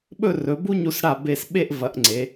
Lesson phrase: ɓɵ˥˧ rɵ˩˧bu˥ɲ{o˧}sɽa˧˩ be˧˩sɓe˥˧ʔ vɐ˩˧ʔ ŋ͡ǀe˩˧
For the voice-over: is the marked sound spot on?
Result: no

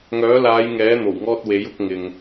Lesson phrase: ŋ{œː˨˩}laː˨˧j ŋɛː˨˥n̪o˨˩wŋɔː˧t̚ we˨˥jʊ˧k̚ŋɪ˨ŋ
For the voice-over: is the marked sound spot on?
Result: no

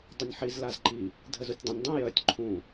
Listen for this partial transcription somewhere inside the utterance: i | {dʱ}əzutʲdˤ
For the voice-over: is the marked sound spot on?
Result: yes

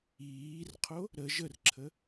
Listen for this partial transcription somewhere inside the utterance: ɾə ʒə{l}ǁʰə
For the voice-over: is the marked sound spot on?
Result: no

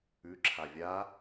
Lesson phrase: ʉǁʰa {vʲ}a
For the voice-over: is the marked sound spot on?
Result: yes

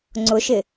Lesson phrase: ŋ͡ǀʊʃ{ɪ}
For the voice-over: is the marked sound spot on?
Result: yes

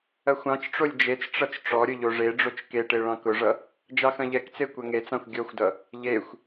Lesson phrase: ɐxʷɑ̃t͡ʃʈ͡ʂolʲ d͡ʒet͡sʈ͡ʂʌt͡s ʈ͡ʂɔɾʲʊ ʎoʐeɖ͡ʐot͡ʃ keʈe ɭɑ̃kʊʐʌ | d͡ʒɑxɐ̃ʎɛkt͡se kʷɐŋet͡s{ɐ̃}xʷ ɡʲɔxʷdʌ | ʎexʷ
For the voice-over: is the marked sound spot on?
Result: no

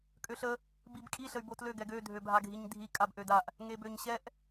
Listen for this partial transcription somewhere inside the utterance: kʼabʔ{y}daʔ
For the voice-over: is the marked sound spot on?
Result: no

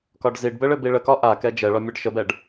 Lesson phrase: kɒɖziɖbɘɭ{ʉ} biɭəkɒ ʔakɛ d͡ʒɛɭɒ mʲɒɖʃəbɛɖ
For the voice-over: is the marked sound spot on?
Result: no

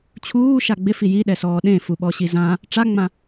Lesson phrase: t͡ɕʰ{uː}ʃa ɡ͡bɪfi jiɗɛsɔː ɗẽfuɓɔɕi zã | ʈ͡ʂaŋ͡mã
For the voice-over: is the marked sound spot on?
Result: yes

